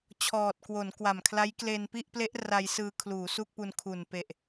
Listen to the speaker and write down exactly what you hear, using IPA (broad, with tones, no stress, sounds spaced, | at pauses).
t͡ɕʰ ɔː˨˩ t̚ k w o˩˦ n k w a˨˩ m kʰ l a˦˥ j k l e˧ n p i˥˩ ʔ p l e˦˥ ʔ r a˧ j s ɯː˧ kʰ l uː˩˦ s u˥˩ k̚ p u˧ n kʰ u˨˩ n p e˨˩ ʔ